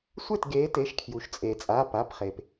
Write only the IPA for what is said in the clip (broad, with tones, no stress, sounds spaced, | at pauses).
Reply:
sʷ e˥˩ t ɡ eː˨˦ t e˩˧˩ ʃ kʰ j u˩ ʃ t͡sʼ eː˩ t͡sʼ a˩˧˩ p a˩˧˩ p χ e˩ p